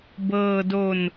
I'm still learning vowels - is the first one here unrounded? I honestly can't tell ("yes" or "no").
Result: yes